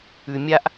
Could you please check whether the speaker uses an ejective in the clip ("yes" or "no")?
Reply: no